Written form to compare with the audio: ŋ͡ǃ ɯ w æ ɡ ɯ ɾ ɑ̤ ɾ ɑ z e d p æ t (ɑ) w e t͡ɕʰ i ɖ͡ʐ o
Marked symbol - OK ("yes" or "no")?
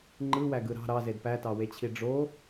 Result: yes